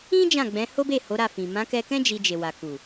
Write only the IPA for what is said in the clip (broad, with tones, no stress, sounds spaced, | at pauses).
ĩ˦ d͡ʒ ã˦˨ ɡ͡b ɛ̃˨˦ h o˦ b e˦˨ h o˨˦ ɾ a˦˨ f ĩ˨ m ã˨˦ k ɛ˧ k ɛ̃˦ d͡ʒ i˧ d͡ʒ e˨ w a˨ k u˨